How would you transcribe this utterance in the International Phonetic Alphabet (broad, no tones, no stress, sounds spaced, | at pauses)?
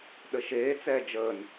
ɗ ə ʃ eː t͡s ɛː d͡ʒ əː n